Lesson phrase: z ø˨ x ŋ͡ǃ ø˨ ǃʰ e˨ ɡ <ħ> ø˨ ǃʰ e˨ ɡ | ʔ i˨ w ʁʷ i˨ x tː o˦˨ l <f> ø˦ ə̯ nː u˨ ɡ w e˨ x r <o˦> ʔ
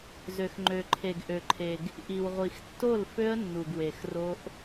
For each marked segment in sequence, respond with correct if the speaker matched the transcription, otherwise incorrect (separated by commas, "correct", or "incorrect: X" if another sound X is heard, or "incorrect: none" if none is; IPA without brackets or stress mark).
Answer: incorrect: ʔ, correct, correct